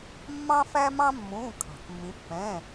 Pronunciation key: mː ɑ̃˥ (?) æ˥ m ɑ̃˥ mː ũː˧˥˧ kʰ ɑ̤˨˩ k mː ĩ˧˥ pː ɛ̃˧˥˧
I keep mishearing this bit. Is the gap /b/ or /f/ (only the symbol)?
f